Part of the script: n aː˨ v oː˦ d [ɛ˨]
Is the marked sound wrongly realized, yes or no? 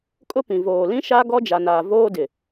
yes